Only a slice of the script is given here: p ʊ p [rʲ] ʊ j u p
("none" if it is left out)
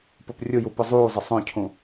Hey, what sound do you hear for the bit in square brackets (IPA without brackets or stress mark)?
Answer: rʲ